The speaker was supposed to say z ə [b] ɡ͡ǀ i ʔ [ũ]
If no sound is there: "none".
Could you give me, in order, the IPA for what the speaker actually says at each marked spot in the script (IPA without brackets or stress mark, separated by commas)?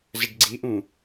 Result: ɖ, ũ